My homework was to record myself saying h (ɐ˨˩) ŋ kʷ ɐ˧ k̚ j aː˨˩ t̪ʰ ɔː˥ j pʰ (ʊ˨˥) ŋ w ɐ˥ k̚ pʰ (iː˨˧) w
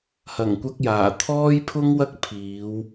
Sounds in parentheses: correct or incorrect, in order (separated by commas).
correct, incorrect, correct